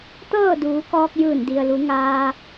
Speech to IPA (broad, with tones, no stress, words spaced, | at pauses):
t̪ɤː˥˨duː˩˧kɔː˧k̚ jɯː˧˩ndi˩ə̯lu˩˧ŋaː˧